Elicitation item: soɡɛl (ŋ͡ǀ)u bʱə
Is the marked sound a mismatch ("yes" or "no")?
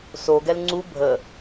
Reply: no